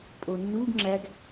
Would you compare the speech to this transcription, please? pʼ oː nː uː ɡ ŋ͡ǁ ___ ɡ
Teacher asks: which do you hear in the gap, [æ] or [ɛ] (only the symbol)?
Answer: æ